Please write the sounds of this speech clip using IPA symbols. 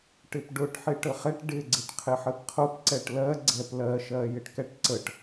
ʈɪpɖʊʈ ħɪʈəχɛʈ ɖɪ ɡ͡ǀɪʈqʰɪħəpqʰʊp ǀɛʈlɜ ɡ͡ǀɛplɜʃɜ jɪʈkɛʈǀəʈ

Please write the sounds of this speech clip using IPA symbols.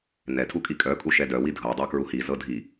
nɛtʰu kʼikʼœkʼu ʃɛdœwi dʱɤdˤœ kɹuhizɤ dʱi

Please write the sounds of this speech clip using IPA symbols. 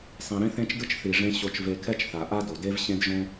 sˤĩ˨ɾĩ˦θẽ˦t͡ʃdɯ˦t͡ʃ θi˨ʐẽ˧ ɕo˧t͡ʃve˧kʰɛ˦t͡ʃθa˨ ʔa˦do˨de˦v ɕẽ˦dʒõ˦

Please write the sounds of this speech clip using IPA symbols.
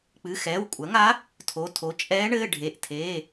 k͡pɨ˩˧˩xɛː˩˧˩wkʷʼɐ˩˥ŋa˧˥ | tʰo˩˧˩tʰo˩˥ t͡ʃʼɛː˧˥ ɳɘː˩˧˩ɖʱe˩˧˩ʔtʰeː˩˧˩

